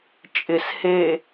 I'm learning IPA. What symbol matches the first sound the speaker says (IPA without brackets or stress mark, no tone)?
t͡ʃʼ